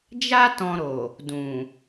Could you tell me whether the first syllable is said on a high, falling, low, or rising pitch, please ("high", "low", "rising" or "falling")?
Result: high